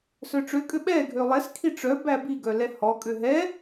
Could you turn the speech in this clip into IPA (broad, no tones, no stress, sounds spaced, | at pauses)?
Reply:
s œ ʈ͡ʂ ø kʼ ø ɓ ɛ ɡʱ ø lˠ ɛ s kʰ i ʈ͡ʂ œ b æ b i ɡ œ l ɛ h ɔ kʼ ø ɦ ɛ